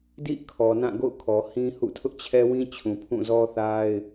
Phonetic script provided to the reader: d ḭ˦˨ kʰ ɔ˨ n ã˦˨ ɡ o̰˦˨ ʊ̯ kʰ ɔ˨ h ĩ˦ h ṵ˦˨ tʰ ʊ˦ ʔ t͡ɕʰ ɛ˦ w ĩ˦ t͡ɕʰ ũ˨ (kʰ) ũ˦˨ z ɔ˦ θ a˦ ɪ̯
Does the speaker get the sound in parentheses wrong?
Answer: yes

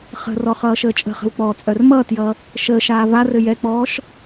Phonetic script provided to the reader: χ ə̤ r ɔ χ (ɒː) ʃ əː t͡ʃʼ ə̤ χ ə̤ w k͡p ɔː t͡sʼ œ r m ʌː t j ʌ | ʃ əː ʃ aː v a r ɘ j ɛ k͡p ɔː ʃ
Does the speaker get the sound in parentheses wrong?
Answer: yes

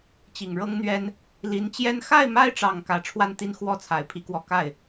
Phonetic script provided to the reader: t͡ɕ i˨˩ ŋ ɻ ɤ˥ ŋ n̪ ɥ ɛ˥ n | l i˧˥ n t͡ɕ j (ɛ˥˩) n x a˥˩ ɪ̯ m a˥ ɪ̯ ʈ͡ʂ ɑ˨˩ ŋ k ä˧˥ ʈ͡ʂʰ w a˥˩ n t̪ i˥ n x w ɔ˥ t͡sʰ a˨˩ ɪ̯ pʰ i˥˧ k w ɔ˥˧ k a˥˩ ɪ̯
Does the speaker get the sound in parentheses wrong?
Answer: yes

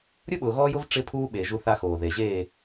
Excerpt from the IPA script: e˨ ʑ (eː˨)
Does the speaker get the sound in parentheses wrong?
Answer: yes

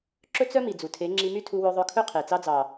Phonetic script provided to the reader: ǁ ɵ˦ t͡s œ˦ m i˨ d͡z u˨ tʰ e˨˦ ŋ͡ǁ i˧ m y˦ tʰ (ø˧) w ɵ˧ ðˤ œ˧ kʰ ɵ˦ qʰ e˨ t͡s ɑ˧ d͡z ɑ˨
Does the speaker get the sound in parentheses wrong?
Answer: yes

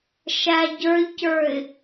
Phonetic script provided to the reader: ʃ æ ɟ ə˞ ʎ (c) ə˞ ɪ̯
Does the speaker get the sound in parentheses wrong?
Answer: no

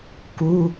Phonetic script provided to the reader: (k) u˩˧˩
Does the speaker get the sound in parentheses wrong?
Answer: no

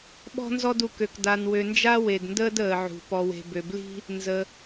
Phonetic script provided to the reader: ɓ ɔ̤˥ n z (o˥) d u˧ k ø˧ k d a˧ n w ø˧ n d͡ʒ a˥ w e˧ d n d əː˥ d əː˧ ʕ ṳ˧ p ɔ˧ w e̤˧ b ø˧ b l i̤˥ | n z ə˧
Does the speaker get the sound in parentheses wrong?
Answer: yes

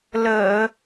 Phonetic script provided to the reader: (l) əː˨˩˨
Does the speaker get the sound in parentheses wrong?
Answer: no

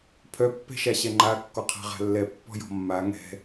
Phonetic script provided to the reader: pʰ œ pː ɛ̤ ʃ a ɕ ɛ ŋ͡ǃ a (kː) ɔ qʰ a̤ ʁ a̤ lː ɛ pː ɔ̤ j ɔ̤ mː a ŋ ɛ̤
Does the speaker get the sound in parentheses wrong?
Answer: no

